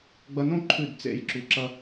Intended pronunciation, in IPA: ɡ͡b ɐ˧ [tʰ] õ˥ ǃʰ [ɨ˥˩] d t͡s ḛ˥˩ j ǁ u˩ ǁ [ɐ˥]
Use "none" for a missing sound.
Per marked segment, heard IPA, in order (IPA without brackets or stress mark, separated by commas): n, ʉ˥˩, ɐ˧